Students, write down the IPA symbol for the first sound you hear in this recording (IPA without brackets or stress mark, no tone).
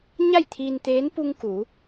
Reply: ɲ